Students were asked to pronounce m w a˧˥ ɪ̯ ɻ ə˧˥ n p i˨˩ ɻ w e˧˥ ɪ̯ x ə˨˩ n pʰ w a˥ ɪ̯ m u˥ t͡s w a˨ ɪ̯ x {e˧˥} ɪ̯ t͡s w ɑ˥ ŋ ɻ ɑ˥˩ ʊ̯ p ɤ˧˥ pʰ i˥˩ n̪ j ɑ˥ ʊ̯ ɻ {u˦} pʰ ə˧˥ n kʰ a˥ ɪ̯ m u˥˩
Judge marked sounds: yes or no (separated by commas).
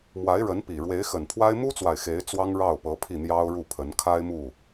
yes, no